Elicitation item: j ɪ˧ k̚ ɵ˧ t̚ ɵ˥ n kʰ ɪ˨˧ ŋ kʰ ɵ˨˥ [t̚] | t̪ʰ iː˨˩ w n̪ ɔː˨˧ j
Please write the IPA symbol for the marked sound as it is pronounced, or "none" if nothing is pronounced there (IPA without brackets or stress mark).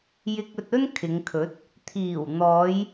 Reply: t̚